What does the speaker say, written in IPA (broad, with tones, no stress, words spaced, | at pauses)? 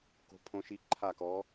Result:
ko̤˧˥pʰõ˧˥ʃi˧˥ ǃʰa˥˨kɔ˧˥